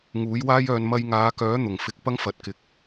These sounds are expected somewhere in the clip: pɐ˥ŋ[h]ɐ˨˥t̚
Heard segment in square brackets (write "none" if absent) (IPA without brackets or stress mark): f